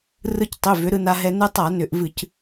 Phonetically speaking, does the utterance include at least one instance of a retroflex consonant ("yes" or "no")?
no